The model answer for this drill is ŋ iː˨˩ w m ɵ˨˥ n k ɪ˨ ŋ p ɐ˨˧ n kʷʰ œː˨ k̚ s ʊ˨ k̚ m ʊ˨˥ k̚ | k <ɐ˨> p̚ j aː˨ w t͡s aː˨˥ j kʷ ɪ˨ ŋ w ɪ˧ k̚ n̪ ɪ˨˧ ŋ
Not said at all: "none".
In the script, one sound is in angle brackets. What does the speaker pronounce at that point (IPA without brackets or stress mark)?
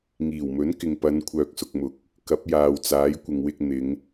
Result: ɐ˨˥